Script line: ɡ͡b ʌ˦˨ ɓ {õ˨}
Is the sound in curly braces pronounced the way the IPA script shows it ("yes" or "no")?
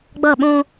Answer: no